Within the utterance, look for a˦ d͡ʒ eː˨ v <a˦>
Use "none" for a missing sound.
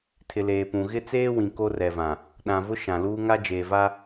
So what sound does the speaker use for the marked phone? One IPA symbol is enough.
a˦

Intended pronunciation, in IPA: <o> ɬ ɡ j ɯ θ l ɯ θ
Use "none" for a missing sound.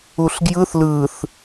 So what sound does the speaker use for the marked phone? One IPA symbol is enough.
u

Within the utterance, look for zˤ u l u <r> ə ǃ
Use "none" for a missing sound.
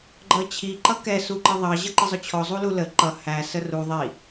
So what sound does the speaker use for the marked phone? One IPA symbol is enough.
l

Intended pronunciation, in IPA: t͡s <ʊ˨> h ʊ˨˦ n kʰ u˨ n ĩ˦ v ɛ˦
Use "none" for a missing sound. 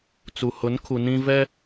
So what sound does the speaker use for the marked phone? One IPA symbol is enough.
u˨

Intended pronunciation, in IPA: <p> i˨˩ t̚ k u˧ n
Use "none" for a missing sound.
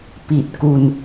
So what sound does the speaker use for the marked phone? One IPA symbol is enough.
p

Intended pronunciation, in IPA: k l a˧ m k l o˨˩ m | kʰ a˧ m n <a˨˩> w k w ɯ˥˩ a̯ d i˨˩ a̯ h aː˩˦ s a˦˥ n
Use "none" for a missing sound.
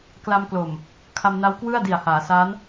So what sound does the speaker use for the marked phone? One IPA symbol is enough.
a˦˥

